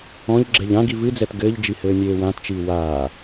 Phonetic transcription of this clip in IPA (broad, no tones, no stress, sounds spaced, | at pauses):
ɔ̃ ʎ ɡ͡ǁ ɛ ʎ ã ɡ i v ɨ d͡z ɛ t ɡ ɘː ʎ d͡ʒ i h ɘː nʲ eː w ã t t͡ʃ iː w aː